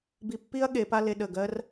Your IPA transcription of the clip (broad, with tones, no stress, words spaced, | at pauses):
bi˧pːi˥ɐ̯ ɠe˩˧pa˥ le˧ɗə˧˩ɡɜ˥r